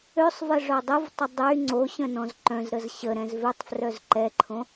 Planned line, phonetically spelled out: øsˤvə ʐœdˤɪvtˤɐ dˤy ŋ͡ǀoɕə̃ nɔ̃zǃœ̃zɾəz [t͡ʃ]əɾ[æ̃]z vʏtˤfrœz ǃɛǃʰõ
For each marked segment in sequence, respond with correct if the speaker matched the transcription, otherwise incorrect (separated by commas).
incorrect, incorrect